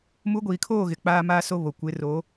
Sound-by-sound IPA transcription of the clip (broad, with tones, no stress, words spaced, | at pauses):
mu˨˦ɡʷiː˨kʰoː˦˨ ɣɪ˨k͡paː˦ maː˦so˦βo˨ kʷɪ˨˦ ro˨˦